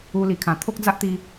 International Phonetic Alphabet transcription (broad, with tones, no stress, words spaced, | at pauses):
u˧li˨˩ kʰã˨˩t̪ʰo˦k̚d͡za˦ʔt̪i˧